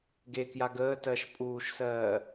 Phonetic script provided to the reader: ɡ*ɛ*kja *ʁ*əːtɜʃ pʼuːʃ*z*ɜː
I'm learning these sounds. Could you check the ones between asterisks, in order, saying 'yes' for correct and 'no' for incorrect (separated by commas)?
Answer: no, no, no